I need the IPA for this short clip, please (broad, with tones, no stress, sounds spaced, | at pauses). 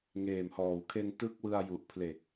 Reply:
ŋ eː˨˩ m h ɔː˨˩ w kʰ e˧ n t ɯ˦˥ k̚ w ɯ˧ a̯ j u˨˩ ʔ pʰ l e˨˩ k̚